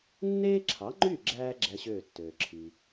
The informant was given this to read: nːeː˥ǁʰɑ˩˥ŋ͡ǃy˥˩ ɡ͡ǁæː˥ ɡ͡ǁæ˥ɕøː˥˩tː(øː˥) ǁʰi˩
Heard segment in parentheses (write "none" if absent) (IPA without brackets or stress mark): øː˩